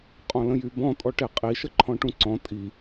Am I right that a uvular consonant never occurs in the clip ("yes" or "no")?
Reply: no